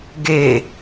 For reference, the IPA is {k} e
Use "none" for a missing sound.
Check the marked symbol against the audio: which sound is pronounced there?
ɡ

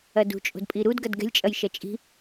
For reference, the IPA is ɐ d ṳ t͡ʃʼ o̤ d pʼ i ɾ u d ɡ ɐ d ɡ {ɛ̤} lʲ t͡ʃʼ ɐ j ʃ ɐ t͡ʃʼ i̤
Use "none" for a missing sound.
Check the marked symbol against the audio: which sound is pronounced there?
ɛ̤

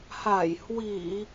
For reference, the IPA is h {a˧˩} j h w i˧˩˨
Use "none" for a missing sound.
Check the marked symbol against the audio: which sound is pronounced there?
a˧˩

